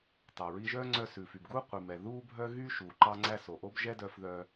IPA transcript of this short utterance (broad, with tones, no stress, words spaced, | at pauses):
tɑ˩ɹi˧ʒœː˥ ŋ͡ǀœ˧sʉ˩fy˩bɡuː˥ qʷi˩mɛ˩ ðuː˥bʱœ˥ ɣy˥ ʃuː˩ǃɑ˧ŋ͡ǀæ˧ so˩ʔo˥bʒɛ˥ dœ˧fðœ˧